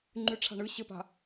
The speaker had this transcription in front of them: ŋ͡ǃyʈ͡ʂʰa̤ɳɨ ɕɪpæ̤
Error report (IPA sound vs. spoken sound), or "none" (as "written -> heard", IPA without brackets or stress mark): æ̤ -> a̤